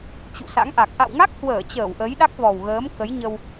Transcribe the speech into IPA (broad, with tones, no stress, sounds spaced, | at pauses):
t͡ɕ ṵ˧˨ s a̰˧˥ ŋ ʔ a˨˩ k̚ ʔ a̰˧˨ w ŋ a˦˥ k̚ h w əː˧˩ t͡ɕ əː˧˩ w ʔ ə˨˦ j ɗ a˦˥ k̚ v ɔ˨˩ w ɣ əː˨˦ m k ə˨˦ j ɲ ə˧ w